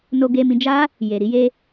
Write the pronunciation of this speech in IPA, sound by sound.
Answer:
no˧ɡe˧mĩ˧d͡ʒa˦ | je˨ɾi˧je˧

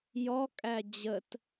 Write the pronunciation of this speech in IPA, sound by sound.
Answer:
jɔkʼæ d͡ʑət

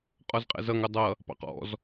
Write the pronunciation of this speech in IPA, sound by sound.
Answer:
qʼɔzqʼɛ̰zʌŋ ʊdˤʌ | pɑ̰qɔ̰z

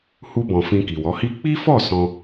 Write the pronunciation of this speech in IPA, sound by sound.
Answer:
hu˧bɔ̃˨ fĩ˧ki˨wɔ˨˦hi˦ k͡pi˦fɔ˦˨ sɔ̃˧

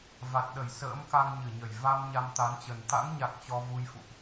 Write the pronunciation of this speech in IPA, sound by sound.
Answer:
va˨˩t̚ɗə˧˩j sə̰ː˧˥mka˧ŋɲɨ˧˩ɲə˧˩j va˧m ɲa˧mt̪a˨˦nt͡ɕə˨˩n t̪a̰˧˥ŋɲa˨˩k̚ t͡ɕɔ˧ vu˧jfṵ˧˨ʔ

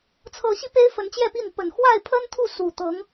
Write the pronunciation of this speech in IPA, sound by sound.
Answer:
t͡sʰɤ˨˦ɕi˧ pe˦ɪ̯ fə˨˦nt͡ɕjɛ˥˨pi˥˨n pə˨˩nxwa˥˨ɪ̯ pʰə˦nt̪ʰu˥˨ su˨˩ t̪ɤ˨˦ŋ

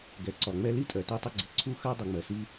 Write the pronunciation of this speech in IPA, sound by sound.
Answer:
ɡɛ˩ǀɒ˩ŋ͡mɛ˥ li˥tʼɜ˩ te˥tˤɪ˥ɡ͡ǀɪ˩ ǀʰu˥xɜ˥ dˤu˩ŋ͡mɜ˩si˥

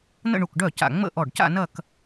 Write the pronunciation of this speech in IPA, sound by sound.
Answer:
nə̰˥˧ɳu˧˩kɖœ˥˩ca̰˧˩ ŋ͡mə̰˥˧ ʔɔ˧˩ɖca̰˥˧ nɐ˥˧k

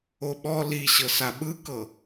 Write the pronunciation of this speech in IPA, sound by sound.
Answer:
oɓɔ liɕɤ saɓɯkɤ

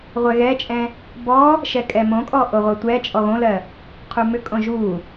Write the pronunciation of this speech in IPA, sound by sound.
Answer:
ʁʷɛɣɛt͡ʃʼɛ̃ | bɔ | ʃɛkʼɛmõkʼɔ ʔoʁʷɜtʷɛt͡ʃʼɔ ɣõlɜ | qʰumʏkʼõ ʒu

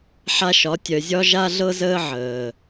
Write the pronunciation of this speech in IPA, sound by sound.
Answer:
ħa˧ʃɒ˨˦ tʲœ˨zʲɒ˦ ʒa˧ɮɤ˧zəː˧ ʕəː˨

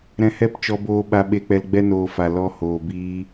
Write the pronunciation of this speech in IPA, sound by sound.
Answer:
ɾɛ̃˧hɛ˦˨p t͡ʃɔ˧boː˧ ɓa˧ɓe˧k͡pɛ˧l ɡ͡bɛ˦noː˧fa˨ lɔ˧hoː˨ biː˧

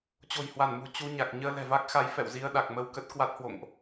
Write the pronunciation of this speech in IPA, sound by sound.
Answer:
t͡ɕo̤˨˩jhwa˧˩nmṳ˨˩ t͡ɕu˧ɲa˨˩k̚ ɲəː˧lɛ̤˨˩va˦˥k̚xa˨˦j fɛ̰˧˨wzi˧ə̯ ɗa˨˩k̚mə˧wkə˦˥t̚ kwa˦˥t̚hwo̰˧˨ŋʔ

